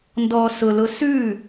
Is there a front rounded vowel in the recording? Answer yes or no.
no